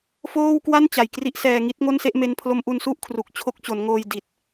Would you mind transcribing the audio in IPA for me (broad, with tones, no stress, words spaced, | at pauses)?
foː˥˩wkwa˥˩nt͡ɕa˨˩j kri˦˥ʔsɛː˧ŋi˦˥t̚ ŋo˥˩nse˥˩ʔme˦˥npʰlo˦˥m ʔu˧nsu˥˩ʔ kʰru˨˩k̚t͡ɕʰo˦˥k̚t͡ɕo˩˦nŋoː˧j di˨˩t̚